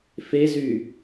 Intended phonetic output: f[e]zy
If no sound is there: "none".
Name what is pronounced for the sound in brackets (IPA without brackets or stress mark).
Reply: e